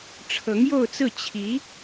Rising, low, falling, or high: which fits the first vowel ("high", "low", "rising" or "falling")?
rising